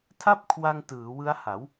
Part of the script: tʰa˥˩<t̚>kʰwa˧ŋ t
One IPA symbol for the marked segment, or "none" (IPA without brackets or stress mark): p̚